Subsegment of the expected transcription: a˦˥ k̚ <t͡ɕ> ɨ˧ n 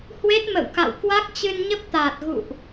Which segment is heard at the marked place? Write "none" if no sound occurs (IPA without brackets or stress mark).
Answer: t͡ɕ